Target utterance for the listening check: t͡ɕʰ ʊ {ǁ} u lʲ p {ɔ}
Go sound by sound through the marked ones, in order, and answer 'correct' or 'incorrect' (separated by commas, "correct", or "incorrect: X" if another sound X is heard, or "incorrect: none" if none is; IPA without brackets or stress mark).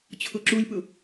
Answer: correct, incorrect: ʊ